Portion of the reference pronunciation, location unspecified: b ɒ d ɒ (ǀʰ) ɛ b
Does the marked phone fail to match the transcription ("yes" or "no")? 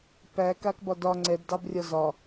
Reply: yes